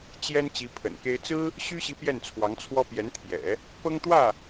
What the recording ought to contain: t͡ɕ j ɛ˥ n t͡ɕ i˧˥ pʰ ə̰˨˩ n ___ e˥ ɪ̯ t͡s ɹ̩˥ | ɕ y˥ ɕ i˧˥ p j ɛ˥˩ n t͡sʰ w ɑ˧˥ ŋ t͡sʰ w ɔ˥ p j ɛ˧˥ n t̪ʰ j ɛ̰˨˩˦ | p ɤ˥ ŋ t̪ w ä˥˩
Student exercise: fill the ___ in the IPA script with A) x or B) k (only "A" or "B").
B